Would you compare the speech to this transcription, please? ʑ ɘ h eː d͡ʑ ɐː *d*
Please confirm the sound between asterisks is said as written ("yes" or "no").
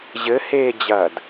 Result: yes